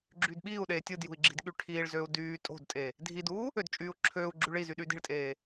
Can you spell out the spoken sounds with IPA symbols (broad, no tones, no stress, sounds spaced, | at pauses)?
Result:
ɡ͡ǁ yː d ɓ iː u̯ ɗ eː tʲ ɯ d j ṳ i̯ ɡ͡ǁ i̤ d ɠ y ʈʰ iː ɭ z øː u̯ d yː tʼ o̤ d tʼ e | dʱ i d uː | ø d t͡ʃʼ yː u̯ ǁʰ øː u̯ ɡ͡ǁ y ɭ i z y ɗ yː d i̤ ɭ tʼ eː